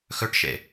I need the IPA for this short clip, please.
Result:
x ɵ ʈ ʃ ḛ

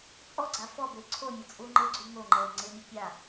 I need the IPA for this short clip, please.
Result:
t͡sʼ ɔ ɡ͡ǀ a f ɔ b e ǀʰ o mʲ o t͡sʼ u ŋ͡ǃ ɪ ɡ͡ǀ u ŋ o ŋ͡ǃ ɛ ə̯ ŋ͡ǀ ɪ mʲ ʊ pʲ a

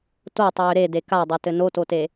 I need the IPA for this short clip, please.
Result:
t o tˤ ʏː ɾ e d e k a dˤ ɛ t ɘ n o t o t e

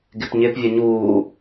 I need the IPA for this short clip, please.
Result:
ɡ ɪ p ɲ ɪ p vʲ ʌ ɲ uː

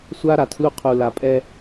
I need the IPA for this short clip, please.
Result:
sʷ a˦ ɾ a˨ tʰ l u˧ qʰ u˨ l a˨ pʼ ɛ˧

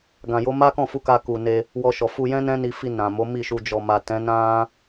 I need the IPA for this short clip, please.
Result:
ɡ ã˧ j o˦ m a˦ k ɔ̃˦˨ f u˧ k a˧ k u˨ n e˧ | w ɔ˧ ʃ ɔ˨ f u˧ j ɛ̃˦ n ɛ̃˦ n i˧ f i˧ n ã˨ m o˨˦ m i˦˨ ʃ u˧ d͡ʒ ɔ˨ m a˨ t ɛ̃˨˦ n ã˦

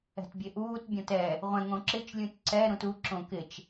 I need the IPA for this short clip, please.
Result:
ɛ̤ t bʲ e ʔ uː t bʲ ɔ̃ t ɛ | ʁʷ ɛ̃ ŋ õ ǁ ɪ t͡ʃ lʲ ũ t ǀ ɛ ɾ ũ t u ǁ õ k ɪ t͡ʃ

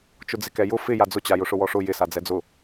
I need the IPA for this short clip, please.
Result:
t͡ʃ ʊ d͡z ɪ k ɛ j ʊ f ɪ j a d͡z ʊ t͡ɕ a j ʊ ʂ ʊ w ɔ ʂ ʊ j ɪ s a d͡z ɛ d͡z ʊ

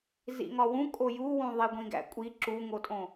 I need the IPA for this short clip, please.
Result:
z ḭ ŋ ɒ w ũ kʼ o j u w ũ ðˤ i ɡʷ ĩ ɡ æ̰ kʷʼ i ǁ u ŋ o tʼ õ

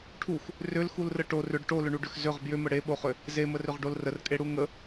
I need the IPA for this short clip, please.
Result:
ʈʰ u x | r ʏ l x u l r ə ʈ o r ʏ ɖ ʈ o l ʏ ɳ u ɖ ʏ x z ʏ ʁ b j ʏ m ə ɽ e ɓ o χ ʏ | z e m ə r ʏ ʁ ɖ o l r ə r kʼ e ɽ u ŋ ə

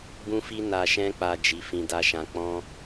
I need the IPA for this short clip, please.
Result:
b ũ˧ f i˧ n a˨ ʃ ɛ̃˧ k͡p a˨ d͡ʒ i˨˦ f ĩ˧ d a˦ ʃ ã˧ k͡p ɔ̃˦

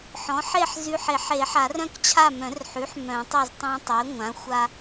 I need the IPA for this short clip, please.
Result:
ħ ɔ̃˩˥ ħ e˦˨ ħ z y˨ ħ e˨˩˦ ħ e˨˩˦ ħ a˨˩˦ r œ̃˦ k t͡ɕʰ a˦˨ m œ̃˨˩˦ r ħ y˩˥ ħ m œ̃˨˩˦ tˤ ɵ˦˨ z tˤ ã˦ tˤ e˩˥ ŋʷ ã˩˥ xʷ a˦

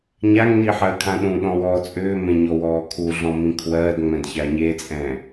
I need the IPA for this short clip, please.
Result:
ɲ a ŋ n i ħ ɜː kʰ ã ɗ ũ ɗ ɔ̃ w ɔː t͡sʼ ʏː m ẽ ɲ ɔ w ɔː kʰ u ɮ ɔ̃ m ĩ kʰ w ɜː d ŋ͡m ɛ̃ d ç a ɲ e t͡sʼ ɛ̃

